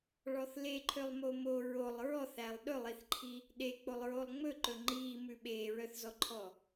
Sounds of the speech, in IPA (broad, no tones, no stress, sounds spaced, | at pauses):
ɭ ɔ θ l e ǃʰ ø lˠ m o m o ɹ o lˠ ɹ ɔ θ æ lˠ ɗ ɵ lˠ i θ ǃʰ i | ɗ e k͡p o lˠ ɹ o lˠ ŋ͡m ɵ ǃ ɵ ŋ͡ǃ iː m ʉ ɓ eː ɹ œ θ z ɔ ǃʰ ɔ